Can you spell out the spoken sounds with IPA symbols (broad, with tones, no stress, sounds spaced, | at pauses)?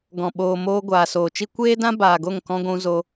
ɡ ɔ̃˨ ɓ oː˨ m oː˧ ɡʷ aː˨ s oː˨ t͡ʃ i˦ kʷ eː˦ d ã˦ b aː˨ ɡ o˦˨ ŋ k ɔ̃˧ ɡʷ ũ˧ z o˧